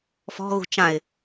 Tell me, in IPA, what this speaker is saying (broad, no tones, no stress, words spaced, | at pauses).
fɔ̤ɣṳ t͡ʃãɪ̯